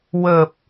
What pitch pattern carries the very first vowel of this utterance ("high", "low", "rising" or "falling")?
low